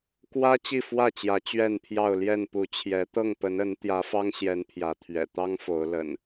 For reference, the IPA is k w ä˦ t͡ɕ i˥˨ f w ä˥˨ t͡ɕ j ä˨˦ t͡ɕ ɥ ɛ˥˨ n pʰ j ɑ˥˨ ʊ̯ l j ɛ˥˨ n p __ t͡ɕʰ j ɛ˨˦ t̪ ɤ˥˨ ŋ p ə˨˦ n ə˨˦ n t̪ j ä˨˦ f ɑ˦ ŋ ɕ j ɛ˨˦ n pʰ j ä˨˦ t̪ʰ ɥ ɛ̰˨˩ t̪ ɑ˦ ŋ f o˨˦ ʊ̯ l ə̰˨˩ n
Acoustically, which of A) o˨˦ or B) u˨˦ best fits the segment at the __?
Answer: B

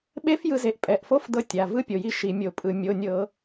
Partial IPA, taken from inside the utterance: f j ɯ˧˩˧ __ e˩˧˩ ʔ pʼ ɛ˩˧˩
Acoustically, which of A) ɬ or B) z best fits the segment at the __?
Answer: B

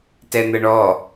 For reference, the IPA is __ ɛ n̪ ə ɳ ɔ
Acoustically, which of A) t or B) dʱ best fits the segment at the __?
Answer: A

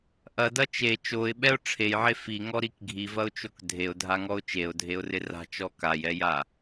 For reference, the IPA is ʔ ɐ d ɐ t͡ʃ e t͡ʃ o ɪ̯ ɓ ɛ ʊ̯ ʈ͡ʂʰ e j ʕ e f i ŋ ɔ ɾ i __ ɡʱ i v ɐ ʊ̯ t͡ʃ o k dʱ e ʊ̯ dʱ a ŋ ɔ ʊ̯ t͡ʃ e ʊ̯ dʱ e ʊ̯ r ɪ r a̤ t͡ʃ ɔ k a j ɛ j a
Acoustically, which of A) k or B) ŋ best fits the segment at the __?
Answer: A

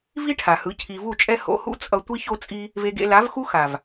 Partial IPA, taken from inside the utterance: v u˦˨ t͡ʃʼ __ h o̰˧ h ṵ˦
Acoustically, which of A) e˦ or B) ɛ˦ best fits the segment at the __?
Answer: B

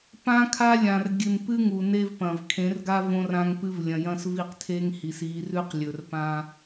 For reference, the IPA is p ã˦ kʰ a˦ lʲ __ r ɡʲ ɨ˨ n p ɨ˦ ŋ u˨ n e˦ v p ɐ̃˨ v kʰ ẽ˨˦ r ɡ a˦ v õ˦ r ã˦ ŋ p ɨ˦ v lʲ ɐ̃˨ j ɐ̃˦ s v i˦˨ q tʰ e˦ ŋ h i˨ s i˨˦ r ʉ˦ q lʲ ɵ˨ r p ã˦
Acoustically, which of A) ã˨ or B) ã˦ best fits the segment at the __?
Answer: A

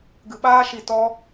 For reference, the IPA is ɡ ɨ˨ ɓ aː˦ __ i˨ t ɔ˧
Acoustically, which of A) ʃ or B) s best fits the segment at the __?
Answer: A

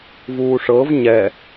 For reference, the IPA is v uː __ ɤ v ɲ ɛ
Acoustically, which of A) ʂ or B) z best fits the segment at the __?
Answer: A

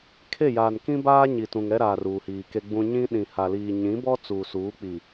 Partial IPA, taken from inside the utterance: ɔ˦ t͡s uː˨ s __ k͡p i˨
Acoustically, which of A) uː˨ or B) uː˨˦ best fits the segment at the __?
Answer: B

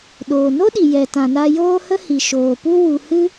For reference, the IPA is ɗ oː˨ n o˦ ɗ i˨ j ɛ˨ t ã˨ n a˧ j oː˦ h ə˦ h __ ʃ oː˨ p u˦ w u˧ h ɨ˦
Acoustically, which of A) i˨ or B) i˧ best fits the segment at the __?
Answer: A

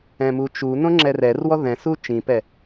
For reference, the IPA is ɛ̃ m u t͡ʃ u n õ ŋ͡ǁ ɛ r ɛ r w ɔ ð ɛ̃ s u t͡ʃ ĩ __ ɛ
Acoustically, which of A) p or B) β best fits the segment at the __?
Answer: A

